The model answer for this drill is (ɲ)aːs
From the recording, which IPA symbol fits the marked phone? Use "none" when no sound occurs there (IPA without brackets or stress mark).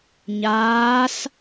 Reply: ɲ